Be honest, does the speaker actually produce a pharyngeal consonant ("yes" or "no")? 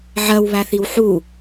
yes